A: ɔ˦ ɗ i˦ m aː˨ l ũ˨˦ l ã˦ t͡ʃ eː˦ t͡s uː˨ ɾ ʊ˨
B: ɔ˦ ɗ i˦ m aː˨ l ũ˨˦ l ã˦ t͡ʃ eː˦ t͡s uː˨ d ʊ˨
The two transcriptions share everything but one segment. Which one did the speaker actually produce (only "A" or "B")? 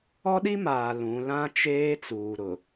A